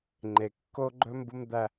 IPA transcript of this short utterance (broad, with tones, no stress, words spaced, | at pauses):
ŋ͡ǃe˨kːo˦ɡ͡ǃɵ˦ mbu˦md̪æ˦